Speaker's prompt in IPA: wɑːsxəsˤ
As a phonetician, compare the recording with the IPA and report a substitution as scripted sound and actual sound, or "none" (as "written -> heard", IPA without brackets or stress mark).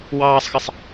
s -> sˤ